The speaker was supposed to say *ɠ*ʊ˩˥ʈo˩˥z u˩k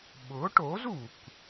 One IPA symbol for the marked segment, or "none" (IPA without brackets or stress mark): ɓ